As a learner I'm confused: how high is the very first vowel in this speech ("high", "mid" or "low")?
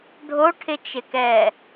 mid